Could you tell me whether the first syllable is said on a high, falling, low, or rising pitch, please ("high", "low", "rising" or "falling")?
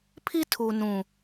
high